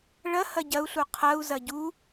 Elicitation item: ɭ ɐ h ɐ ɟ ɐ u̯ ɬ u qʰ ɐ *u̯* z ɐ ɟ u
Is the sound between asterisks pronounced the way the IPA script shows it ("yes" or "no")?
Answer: yes